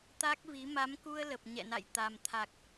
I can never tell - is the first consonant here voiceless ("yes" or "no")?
yes